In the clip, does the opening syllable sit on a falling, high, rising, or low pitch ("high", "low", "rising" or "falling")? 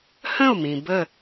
falling